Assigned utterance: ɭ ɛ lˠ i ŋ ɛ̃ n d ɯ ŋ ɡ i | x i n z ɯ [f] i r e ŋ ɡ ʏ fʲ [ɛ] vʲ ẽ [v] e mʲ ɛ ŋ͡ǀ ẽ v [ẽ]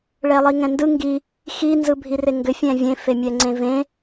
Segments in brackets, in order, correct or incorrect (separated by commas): incorrect, incorrect, incorrect, correct